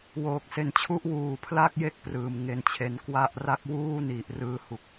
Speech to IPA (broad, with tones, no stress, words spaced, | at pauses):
woː˨˩k̚se˨˩nt͡ɕʰu˦˥ʔ wuː˨˩ pʰla˥˩k̚ je˥˩k̚ prɯː˨˩mŋe˧nt͡ɕʰe˧n kwa˥˩ʔ ra˥˩k̚wuː˥˩ni˨˩ʔ rɯː˦˥hu˨˩k̚